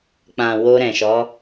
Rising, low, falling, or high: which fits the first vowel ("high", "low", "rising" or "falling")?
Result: low